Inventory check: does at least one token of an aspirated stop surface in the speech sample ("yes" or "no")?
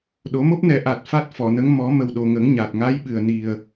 no